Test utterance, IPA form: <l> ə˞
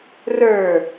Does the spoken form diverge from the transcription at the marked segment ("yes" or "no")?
yes